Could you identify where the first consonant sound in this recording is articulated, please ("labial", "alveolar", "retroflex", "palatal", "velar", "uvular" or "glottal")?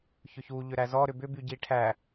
palatal